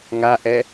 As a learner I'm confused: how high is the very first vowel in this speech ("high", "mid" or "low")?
low